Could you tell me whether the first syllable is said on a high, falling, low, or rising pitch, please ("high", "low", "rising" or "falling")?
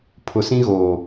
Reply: low